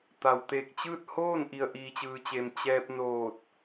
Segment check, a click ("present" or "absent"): absent